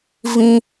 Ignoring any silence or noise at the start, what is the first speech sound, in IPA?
v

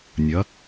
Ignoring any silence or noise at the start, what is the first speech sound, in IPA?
nʲ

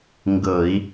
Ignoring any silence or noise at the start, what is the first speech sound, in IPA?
ŋ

